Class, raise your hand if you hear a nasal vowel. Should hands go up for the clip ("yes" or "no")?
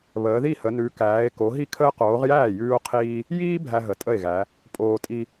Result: no